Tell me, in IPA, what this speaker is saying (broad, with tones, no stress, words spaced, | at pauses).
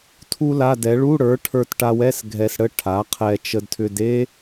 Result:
tʰu˥la˧˥˧dɛ˩˥ ɭu˧˥˧ɽə˞˩˥ʈʰə˞˧t ʈa˧wɛ˧˥˧s ɡʱɛ˧sɽə˥ ʈʰa˩˥qʰɛ˧ t͡ʃə˧dtʰʏ˧d e˥